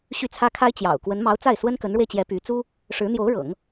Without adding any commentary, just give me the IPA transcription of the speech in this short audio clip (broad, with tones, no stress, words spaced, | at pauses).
ɕy˥˩t͡sʰä˥kʰa˥ɪ̯ t͡ɕjɑ̰˨˩ʊ̯ kwə˧˥nmɑ˧˥ʊ̯t͡sa˥˩ɪ̯ swə˥nkə˧˥nɻwe˧ɪ̯t͡ɕjɛ˧˥ py˧˥ t͡su˥ | ʂɻ̩˧˥n̪jo˧˥ʊ̯ɻɤ̰˨˩˦ŋ